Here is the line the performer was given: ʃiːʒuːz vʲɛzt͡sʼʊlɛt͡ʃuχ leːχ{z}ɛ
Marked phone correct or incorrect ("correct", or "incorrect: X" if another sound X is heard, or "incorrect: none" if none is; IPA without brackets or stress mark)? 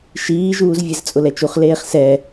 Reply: incorrect: s